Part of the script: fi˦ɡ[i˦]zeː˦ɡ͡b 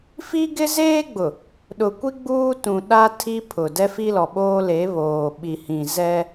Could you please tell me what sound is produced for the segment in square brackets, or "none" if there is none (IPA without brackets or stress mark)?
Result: ɪ˦